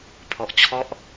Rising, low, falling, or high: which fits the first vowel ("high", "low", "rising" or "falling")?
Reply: low